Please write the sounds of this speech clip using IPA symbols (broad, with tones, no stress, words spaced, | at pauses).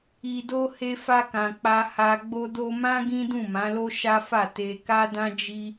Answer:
i˨do˧ he˧fa˧kã˨ k͡pa˧ha˧ɡ͡bo˦do˦ mã˦ ɡĩ˦dũ˦˨mã˨˦lo˦ ʃa˦fa˦˨ te˧ ka˦dã˦ d͡ʒi˦